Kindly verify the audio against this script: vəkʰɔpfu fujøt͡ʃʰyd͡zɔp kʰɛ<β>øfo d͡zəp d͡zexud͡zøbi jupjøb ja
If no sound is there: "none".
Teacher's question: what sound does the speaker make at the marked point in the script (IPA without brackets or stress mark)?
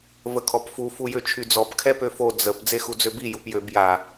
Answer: p